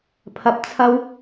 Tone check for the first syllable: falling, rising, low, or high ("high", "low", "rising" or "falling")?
low